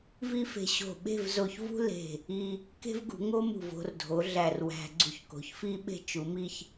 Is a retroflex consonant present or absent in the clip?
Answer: absent